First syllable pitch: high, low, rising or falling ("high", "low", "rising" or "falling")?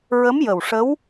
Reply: rising